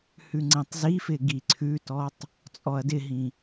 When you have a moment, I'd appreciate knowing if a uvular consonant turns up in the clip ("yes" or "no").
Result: no